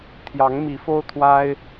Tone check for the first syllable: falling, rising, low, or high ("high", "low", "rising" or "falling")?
rising